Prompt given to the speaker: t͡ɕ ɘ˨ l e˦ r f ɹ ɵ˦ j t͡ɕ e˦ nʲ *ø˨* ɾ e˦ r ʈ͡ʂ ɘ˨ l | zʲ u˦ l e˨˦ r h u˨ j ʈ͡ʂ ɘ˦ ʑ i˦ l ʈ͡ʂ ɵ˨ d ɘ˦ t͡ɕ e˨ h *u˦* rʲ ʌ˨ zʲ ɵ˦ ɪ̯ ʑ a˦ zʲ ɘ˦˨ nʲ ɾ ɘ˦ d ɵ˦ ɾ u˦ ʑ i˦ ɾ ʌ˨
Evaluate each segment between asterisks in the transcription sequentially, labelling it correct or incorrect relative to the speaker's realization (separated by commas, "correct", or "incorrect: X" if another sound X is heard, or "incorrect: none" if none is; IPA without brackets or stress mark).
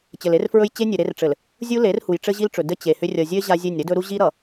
incorrect: ɘ˨, incorrect: ʏ˦